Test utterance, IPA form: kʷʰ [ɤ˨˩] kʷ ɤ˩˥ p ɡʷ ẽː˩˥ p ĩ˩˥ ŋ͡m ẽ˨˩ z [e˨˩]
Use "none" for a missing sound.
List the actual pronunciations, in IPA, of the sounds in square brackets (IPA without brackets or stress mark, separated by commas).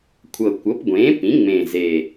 ɤ˨˩, e˨˩